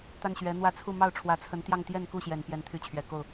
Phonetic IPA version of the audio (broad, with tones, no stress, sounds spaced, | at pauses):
t̪ a˥˩ n ɕ ɥ ɛ˧˥ n̪ w ä˥ t͡sʰ u˥˧ m ɑ˥˩ ʊ̯ ʈ͡ʂʰ w ä˧˥ t͡sʰ ə˧˥ n t̪ j ɑ˥˧ ŋ t̪ j ɛ˥˧ n k u˥˩ ɕ j ɛ˨˩ n p j ɛ˧˥ n t̪ʰ y˧˥ t͡ɕʰ ɥ ɛ˨˩ k o˥˩ ʊ̯